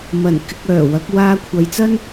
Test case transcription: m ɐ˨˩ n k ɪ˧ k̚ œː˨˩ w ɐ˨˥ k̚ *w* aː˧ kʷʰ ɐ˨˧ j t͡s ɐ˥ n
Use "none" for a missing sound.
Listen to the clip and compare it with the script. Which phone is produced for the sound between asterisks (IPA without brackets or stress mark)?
w